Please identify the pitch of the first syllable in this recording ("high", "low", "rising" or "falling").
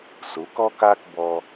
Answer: rising